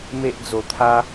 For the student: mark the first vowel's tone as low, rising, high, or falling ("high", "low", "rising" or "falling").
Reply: high